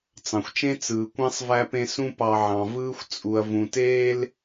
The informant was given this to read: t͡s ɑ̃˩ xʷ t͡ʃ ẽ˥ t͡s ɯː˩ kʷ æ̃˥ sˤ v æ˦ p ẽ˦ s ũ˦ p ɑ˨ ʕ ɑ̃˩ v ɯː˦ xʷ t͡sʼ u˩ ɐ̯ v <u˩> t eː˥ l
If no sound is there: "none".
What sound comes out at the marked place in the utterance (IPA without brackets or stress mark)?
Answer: ũ˩